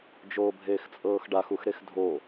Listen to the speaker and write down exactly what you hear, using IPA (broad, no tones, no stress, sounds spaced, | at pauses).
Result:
d͡ʒ oː bʱ eː x t͡sʼ ɤː x ɖ a x u x ɾ e x dʱ o